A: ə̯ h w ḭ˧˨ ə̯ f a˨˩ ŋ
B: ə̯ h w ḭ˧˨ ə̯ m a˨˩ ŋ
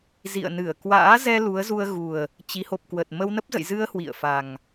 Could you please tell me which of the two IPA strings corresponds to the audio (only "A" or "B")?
A